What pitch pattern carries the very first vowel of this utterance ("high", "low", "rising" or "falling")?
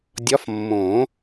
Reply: rising